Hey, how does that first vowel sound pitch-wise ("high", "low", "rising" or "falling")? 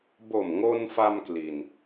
low